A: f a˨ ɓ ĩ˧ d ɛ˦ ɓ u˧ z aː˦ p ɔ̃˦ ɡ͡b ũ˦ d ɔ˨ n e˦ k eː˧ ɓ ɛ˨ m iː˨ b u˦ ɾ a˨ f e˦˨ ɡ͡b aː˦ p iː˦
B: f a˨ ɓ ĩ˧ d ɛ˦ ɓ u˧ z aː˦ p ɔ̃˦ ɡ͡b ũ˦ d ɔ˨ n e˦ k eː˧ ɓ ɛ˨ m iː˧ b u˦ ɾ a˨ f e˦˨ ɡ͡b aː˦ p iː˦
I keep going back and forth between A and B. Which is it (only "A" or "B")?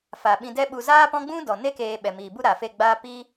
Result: A